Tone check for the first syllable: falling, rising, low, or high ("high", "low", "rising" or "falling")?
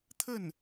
falling